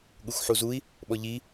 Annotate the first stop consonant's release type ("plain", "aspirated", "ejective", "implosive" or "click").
implosive